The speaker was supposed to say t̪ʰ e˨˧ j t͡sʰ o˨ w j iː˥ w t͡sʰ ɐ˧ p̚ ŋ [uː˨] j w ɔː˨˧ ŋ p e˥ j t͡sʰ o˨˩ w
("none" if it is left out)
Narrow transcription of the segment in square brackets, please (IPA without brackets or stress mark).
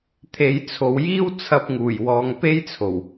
uː˨˩